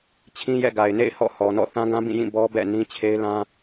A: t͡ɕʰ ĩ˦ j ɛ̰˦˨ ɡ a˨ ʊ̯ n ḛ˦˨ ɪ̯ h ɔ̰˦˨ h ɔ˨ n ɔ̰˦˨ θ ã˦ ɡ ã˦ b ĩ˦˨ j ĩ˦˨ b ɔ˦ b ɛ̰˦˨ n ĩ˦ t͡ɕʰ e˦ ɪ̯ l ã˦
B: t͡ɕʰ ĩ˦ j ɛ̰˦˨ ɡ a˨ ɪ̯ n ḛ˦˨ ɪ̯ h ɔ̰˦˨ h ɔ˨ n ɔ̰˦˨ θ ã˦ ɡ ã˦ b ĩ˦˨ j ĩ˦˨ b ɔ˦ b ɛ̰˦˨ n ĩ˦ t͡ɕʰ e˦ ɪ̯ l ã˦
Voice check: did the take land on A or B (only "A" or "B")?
B